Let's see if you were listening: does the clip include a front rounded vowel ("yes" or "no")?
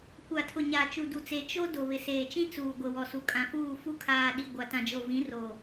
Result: no